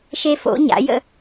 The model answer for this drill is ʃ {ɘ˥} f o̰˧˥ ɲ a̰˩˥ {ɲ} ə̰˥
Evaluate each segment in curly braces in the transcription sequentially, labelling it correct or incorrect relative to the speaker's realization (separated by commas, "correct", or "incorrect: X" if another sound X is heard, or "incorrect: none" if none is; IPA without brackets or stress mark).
incorrect: e˥, incorrect: j